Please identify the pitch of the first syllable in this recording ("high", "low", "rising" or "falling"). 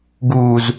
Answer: low